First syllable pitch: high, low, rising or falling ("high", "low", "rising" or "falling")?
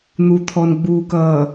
low